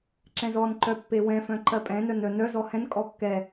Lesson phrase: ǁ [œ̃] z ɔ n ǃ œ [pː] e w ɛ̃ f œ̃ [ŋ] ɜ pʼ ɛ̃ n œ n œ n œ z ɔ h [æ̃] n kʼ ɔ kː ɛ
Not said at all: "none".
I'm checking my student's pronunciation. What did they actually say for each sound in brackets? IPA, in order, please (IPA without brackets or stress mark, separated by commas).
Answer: ɛ̃, pː, ǃ, ɛ̃